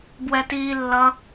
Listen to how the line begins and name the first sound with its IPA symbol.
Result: b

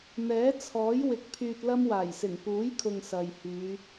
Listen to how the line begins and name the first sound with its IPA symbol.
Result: n̪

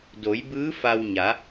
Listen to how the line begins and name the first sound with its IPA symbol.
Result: d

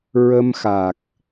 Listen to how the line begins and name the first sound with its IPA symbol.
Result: ɹ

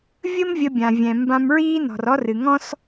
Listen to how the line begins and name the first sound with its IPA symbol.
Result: vʲ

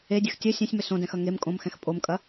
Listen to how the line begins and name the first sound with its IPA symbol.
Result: e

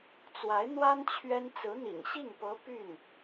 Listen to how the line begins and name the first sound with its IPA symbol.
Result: t͡s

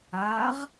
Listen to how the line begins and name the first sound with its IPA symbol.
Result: a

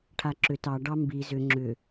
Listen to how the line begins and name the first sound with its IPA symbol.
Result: ʈʰ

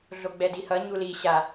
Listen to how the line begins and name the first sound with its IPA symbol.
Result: ɮ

